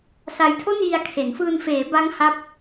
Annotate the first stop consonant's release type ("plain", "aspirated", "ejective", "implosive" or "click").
aspirated